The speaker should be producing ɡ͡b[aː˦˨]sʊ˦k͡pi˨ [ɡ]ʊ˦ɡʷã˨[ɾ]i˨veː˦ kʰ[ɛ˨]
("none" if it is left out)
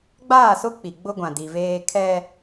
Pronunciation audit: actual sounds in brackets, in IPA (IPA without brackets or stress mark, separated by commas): aː˦˨, ɡ͡b, d, ɛ˦